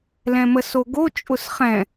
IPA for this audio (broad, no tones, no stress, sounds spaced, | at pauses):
l ɛ̃ m ə s o ɡ o t͡ʃʼ ʊ s χ ɛ̃